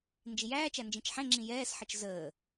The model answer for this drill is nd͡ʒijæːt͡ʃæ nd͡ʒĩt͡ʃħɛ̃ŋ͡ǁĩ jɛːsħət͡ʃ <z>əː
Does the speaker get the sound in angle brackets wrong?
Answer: no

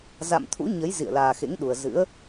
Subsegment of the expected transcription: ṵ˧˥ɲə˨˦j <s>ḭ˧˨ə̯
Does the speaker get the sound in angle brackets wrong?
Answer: yes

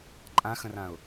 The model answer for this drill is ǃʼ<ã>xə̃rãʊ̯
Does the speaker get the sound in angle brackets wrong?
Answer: no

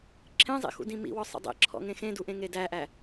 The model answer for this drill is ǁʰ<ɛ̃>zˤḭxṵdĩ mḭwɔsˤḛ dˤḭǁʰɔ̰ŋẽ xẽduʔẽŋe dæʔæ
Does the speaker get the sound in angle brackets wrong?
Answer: yes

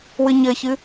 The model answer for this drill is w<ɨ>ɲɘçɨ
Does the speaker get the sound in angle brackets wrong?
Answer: no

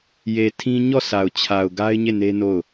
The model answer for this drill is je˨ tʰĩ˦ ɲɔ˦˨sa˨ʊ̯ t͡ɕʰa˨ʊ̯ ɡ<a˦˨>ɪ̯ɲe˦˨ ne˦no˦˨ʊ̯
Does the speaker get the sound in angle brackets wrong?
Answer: yes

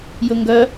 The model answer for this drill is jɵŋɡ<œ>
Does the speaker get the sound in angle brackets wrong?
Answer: no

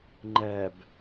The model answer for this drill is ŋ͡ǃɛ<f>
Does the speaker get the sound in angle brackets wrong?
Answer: yes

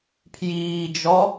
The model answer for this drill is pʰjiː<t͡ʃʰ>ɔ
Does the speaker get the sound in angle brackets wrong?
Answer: yes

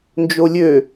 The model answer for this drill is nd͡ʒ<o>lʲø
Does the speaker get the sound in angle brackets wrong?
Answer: no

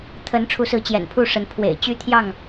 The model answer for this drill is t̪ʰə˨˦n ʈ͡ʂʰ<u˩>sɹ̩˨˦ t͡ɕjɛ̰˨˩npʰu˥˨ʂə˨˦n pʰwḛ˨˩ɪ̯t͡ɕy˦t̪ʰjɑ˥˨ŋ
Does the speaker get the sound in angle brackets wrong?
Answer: yes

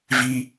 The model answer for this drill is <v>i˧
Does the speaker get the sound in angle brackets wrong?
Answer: no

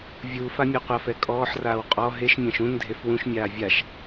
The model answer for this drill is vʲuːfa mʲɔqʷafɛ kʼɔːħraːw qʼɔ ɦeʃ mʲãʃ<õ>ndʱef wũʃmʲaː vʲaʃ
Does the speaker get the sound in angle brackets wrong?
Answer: yes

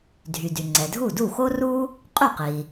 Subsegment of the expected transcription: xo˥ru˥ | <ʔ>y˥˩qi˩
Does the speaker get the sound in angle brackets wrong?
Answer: yes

